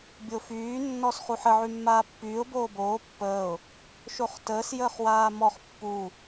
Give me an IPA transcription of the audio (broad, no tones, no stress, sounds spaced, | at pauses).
bʲ o f yː nː ɔ s χ u ħ ə ʕ y mː aː pː yː ʊ̯ b oː b oː pː əː ʊ̯ | ʃ o χ t əː s j əː χ w aː m ɔ χ pː u